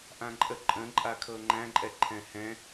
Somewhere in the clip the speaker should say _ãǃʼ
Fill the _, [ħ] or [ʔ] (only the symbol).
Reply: ʔ